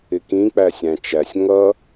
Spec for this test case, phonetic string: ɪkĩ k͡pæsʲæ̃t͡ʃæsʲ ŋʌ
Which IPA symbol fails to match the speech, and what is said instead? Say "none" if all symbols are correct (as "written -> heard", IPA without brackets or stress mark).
none